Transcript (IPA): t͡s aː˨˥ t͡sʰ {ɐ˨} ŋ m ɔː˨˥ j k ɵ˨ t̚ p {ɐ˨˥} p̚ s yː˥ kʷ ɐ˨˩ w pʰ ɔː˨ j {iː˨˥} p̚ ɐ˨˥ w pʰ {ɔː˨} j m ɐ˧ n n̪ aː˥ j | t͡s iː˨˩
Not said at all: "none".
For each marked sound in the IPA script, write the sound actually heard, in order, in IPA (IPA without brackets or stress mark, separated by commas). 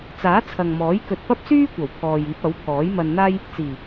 ɐ˨, ɐ˥, iː˨˥, ɔː˨˥